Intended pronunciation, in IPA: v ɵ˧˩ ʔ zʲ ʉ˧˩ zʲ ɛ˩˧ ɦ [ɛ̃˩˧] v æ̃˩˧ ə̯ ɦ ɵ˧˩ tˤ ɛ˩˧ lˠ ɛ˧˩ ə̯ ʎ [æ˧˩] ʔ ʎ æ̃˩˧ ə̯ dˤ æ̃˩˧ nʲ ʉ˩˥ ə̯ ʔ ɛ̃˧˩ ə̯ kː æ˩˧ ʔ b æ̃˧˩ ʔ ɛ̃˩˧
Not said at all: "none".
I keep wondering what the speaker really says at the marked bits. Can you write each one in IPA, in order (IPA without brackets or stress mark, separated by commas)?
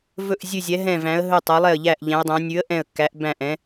ɛ̃˧˩, æ˧˩